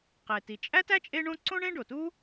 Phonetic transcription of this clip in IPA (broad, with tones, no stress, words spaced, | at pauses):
qe˩ti˩t͡ʃʼæ˥tæ˥ t͡ʃʼe˥ɳõ˥ ǀõ˥ɳẽ˥ɖo˩tu˥